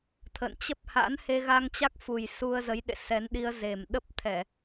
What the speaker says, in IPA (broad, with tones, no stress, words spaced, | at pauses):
t̪ʰə̰˧˨n t͡ɕə˦˥p̚ha̰˧˥n he˧ɣa˧ŋt͡ɕa˦˥k̚fu˨˩j su˧ə̯zə˨˦jɗḛ˧˨ sɛ˨˦nɗi˧ə̯ze˨˩m ɗə˦˥p̚t̪ʰɛ˧˩˨